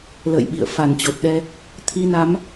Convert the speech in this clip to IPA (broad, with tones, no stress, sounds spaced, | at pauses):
l ə̰ː˧˨ j ɓ ḭ˧˨ ə̯ f a˧˩ n t͡ɕ o˨˩ t̚ ɗ ɛ˧ | t̪ʰ i˧ n a˨˦ m